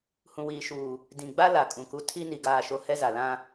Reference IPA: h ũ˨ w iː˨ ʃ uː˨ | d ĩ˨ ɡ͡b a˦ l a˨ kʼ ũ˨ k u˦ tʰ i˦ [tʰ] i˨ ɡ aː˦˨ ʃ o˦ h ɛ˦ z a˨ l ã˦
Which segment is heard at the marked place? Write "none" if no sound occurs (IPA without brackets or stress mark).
n